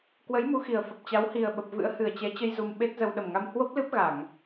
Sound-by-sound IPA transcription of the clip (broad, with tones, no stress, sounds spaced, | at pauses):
k w ə˨˦ j m u˨˦ x i˨˩ ə̯ f ə˨˩ p̚ t͡ɕ a˨˦ w h i˨˩ ə̯ ɓ ə˨˩ p̚ v ɨ̰˧˥ ə̯ h ɨ˨˩ ə̯ t͡ɕ ɛ˨˦ t͡ɕ ə˧ j z u˧ m ɓ e˦˥ t̚ z ə˧ w ɗ ə˨˩ m ŋ a˧ m h w o˦˥ p̚ l ɨ˦˥ p̚ ɣ a˧˩˨ ŋ